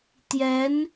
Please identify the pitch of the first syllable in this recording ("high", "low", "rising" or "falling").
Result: rising